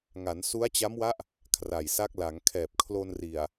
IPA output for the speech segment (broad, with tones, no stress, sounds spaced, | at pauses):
ŋ a˩˦ n s u˦˥ a̯ t͡ɕ a˦˥ m w a˦˥ ʔ | kʰ r a˨˩ j s a˦˥ k̚ l a˩˦ ŋ kʰ ɛː˨˩ p̚ kʰ l o˧ n r i˨˩ a̯